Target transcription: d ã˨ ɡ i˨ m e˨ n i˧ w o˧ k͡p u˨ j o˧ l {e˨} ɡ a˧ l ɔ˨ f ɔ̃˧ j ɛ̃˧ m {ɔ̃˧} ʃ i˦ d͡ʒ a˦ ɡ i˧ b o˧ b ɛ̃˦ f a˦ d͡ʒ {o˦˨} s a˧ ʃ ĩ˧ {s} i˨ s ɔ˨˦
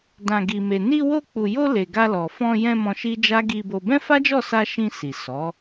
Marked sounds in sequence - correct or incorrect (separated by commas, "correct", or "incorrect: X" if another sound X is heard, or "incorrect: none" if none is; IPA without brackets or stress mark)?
correct, correct, incorrect: ɔ˦˨, correct